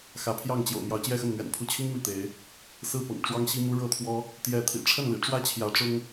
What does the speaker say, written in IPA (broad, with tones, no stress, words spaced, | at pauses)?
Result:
xä˨˦pʰjɑ˥˨ŋt͡ɕjo̰˨˩ʊ̯ mjɑ˨˦ʊ̯t͡ɕjɛ˥˨xə˥˨nn̪ɥɛ̰˨˩n pʰu˨˦t͡ɕʰi˦ŋ mi˥˨t̪e˨˦ɪ̯ | sɹ̩˥˨ pɤ̰˨˩ŋʈ͡ʂwɑ˦ŋɕi˦mu˦ ɻɤ˥˨t̪ʰwɔ˦ | t̪jɛ˥˨ t̪ʰḭ˨˩ʈ͡ʂʰə˥˨nlḭ˨˩ ʈ͡ʂwä˦t͡ɕʰjä˨˦ ʈ͡ʂʊ˦ŋ